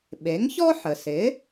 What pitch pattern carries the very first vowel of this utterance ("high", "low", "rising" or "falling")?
rising